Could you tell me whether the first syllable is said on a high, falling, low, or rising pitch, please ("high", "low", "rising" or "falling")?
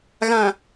low